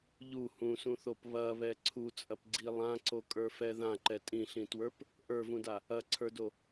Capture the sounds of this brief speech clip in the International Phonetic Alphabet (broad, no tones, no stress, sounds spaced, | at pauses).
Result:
ʎ u h ũ s ũ θ o p β ɐ β ɛ ǀʰ u t͡sʼ ɐ p ɡ͡ǀ i lˠ ã ǀ o kʼ ə˞ f ɛ ð ã ǃ ɛ tʼ ĩ ɬ ĩ t w ə˞ p | ʔ ə˞ v ũ d a | ɐ ǀʰ ə˞ d o